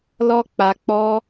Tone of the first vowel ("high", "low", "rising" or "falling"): high